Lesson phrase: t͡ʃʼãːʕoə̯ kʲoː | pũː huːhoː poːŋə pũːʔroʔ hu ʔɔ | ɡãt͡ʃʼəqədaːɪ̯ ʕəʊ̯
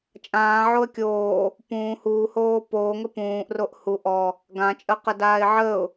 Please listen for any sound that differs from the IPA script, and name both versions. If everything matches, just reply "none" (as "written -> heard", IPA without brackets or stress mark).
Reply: none